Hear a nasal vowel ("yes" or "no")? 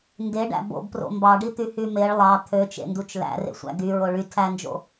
no